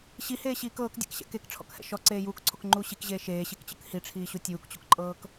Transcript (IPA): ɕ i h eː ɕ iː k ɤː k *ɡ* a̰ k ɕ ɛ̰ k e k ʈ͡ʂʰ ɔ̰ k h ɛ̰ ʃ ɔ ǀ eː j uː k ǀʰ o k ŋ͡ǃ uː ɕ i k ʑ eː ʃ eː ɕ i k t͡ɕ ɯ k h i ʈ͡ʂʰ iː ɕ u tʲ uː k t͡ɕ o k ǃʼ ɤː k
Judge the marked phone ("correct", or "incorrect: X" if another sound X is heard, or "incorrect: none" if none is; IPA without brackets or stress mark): incorrect: dʲ